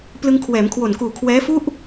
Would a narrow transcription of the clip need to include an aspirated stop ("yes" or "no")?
yes